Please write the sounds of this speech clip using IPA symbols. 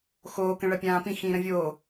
x oː k ə̃ ɭ ɐ pʲ ãː p ĩ x ĩː ɾ ə̃ vʲ oː

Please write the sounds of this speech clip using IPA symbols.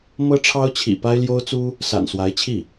m ɤ˥ ʈ͡ʂʰ ɑ˥ ʊ̯ t͡ɕʰ ḭ˨˩ p a˥ ɪ̯ l j o˥ ʊ̯ t͡s u˥ | s a̰˨˩ n s w a˧˥ ɪ̯ t͡ɕʰ i˥˩

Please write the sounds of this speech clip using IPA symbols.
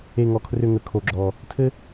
e˨˩ ŋ ɔ˨˩ kʰ r ʏ˨˩ ŋ ə˨˩ kʰ o˨˩ ɡ͡ǁ ɔ˨˩ | tʰ ɘ˦

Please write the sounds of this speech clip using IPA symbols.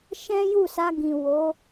ʃ ɛ̃˦ j u˦˨ s a˧ ɡ ĩ˨ w o˨˦

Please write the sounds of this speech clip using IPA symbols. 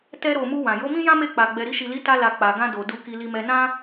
t ɛ˧ ɾ o˨ m u˧ w ã˨ j o˨˦ m ĩ˦ j ã˦ m e˦˨ k͡p a˨ ɡ͡b ɛ˨ ɾ i˧ ʃ i˨ l i˨˦ t a˧ l a˨ k͡p a˨ ɡ ã˧ d o˨ d u˨ k i˧ l i˧ m ɛ˧ n ã˦

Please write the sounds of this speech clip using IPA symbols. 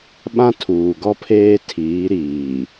ɓ ã˦ tʰ uː˨ ɡ ɔ˦ pʰ eː˦ tʰ iː˨˦ ɾ iː˨

